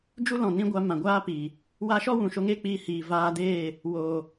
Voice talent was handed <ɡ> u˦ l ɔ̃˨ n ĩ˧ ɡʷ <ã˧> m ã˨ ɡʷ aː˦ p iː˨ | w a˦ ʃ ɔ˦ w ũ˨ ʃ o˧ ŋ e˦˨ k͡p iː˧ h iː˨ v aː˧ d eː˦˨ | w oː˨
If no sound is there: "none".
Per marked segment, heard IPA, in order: d͡ʒ, a˧

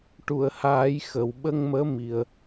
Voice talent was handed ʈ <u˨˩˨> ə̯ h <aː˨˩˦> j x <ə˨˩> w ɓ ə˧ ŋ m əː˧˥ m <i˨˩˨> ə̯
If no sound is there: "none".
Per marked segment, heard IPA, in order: u˨˩˨, aː˨˩˦, ə˨˩, i˨˩

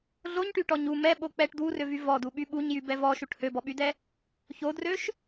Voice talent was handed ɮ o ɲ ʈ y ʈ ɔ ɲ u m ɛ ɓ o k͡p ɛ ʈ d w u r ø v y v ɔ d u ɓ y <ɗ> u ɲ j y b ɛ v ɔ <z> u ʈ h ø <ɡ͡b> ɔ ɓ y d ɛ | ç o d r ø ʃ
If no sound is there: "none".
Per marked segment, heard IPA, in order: ɓ, ʃ, b

